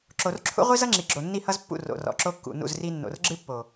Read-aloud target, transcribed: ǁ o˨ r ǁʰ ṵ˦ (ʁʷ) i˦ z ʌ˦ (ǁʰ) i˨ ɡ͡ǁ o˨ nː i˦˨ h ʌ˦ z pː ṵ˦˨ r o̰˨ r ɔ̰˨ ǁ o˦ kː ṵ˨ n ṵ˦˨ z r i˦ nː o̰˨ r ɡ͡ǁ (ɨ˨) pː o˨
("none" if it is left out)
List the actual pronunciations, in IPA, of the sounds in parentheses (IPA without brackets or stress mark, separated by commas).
ʁʷ, ŋ͡ǁ, ɨ˦